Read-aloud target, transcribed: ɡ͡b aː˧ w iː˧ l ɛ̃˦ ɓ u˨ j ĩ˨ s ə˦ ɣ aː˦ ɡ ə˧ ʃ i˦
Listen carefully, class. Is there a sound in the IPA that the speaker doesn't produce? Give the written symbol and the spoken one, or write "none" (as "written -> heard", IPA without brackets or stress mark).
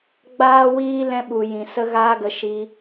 none